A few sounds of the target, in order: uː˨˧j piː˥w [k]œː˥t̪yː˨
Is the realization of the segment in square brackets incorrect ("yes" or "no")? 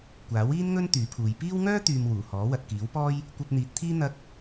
yes